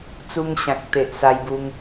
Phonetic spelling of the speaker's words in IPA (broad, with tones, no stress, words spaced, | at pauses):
t͡su˧ŋɕã˨k̚t̪e˨ʔ sa˧jbu˧ŋ